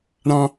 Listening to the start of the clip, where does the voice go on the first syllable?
high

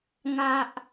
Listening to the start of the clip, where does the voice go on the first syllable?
low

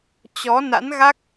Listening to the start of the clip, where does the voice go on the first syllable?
rising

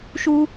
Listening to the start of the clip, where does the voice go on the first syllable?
high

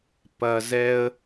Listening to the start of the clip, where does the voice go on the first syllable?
low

